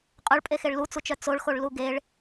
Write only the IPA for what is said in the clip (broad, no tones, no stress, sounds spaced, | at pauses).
qʼ œ ɭ pʼ e x e ɭ l u t͡s u t͡ʃ œ t͡s o ɭ x o ɭ l u ɡ e ɭ